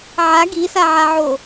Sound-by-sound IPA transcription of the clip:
ʕ a ɡ i s a ʕ a ʕ o

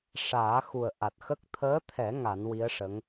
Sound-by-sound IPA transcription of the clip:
ʂ aː˨˩˦ x u˨˩ ə̯ ʔ a˨˩ t̚ x ə˦˥ k̚ t̪ʰ əː˧˥ t̪ʰ ɛ˨˩˦ ŋ a˨˩˦ n w i˧˥ ə̯ ʂ ə˧˥ ŋ

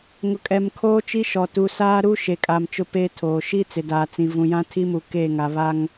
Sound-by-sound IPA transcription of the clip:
ŋ ʊ˨ kʼ ɛ˨ m kʰ oː˦ t͡ʃ i˦ ʃ ɔ˨ t u˨ s aː˦ ɾ u˦ ʃ e˨ kʼ a˨ m t͡ʃ ʊ˦ p eː˦ tʰ oː˨ ʃ i˦ t͡s ɪ˨ d aː˨ t͡s ĩ˨ v ũ˨ j ã˦ tʰ i˦ m u˨ k e˦˨ ŋ a˨ β a˦ ŋ

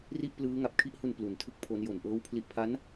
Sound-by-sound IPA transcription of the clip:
r i˥˩ ʔ p l ɯː˦˥ ŋ a˨˩ p̚ kʰ i˥˩ ʔ h u˧ n p l u˩˦ n tʰ ɯ˥˩ k̚ pʰ o˦˥ n j o˨˩ n ʔ ɤː˦˥ w pʰ l i˨˩ ʔ pʰ a˦˥ n

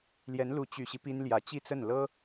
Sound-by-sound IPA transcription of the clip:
l j ɛ˧˥ n l u˧˥ t͡ɕ y˨˩ ɕ i˦ p i˥ n l j ä˧˥ t͡ɕ i˥˧ t͡s ə˥˩ n l ɤ˥

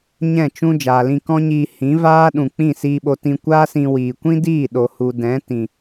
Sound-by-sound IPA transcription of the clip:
ɲ ɛ̃˦˨ t͡ʃ ũ˦ d͡ʒ aː˨ l ĩ˧ k ɔ̃˦ ɲ iː˧ h ĩ˨˦ v aː˦ ɗ ũ˨ k͡p ĩ˦˨ s iː˧ ɓ o˧ t ĩ˧ kʷ aː˦ s ĩ˧ w iː˨ kʷ ĩ˦ d iː˦˨ ɗ o˨ h u˨ d ɛ̃˨˦ t ĩ˨

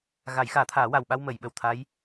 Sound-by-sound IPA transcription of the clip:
ɣ a˨˩˦ j x aː˨˩˦ t̪ʰ aː˨˩˦ w a˨˩ w ɓ a˧ w m ə˨˩˨ j ɓ ə˨˩ w t̪ʰ a˧˥ j

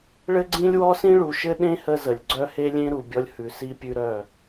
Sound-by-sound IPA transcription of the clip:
ɭ ɘ˦ ɡ͡ǀ ĩ˦ lʲ w ɔ˦ s ĩ˦ ɭ u˨ ʃ ɘ˦ ɗ ẽ˦ h ə˦ z ə˨ lʲ ɡ͡ǀ œ˦ h e˦ lʲ ẽ˦ ɾ u˨ bʲ ɔ˦ lʲ h ʉ˨ s i˦ pʲ ʉ˦ ɾ œ˦˨

